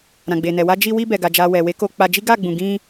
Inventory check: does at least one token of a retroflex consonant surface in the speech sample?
no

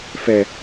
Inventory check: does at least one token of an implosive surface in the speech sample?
no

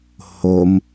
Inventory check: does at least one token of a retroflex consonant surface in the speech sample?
no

